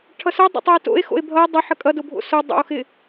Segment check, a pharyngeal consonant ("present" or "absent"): present